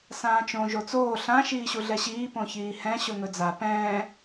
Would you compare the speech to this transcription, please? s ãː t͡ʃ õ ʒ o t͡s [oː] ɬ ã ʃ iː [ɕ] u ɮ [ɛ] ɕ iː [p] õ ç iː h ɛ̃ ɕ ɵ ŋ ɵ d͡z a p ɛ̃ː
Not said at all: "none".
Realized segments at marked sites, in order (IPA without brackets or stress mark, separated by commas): oː, ɕ, ɛ, p